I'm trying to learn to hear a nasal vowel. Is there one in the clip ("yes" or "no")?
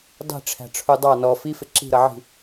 no